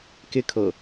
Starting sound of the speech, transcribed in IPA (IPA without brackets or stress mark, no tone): k